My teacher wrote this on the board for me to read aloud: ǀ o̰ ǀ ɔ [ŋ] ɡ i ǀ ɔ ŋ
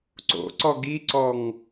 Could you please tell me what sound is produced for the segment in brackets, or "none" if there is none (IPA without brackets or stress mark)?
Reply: none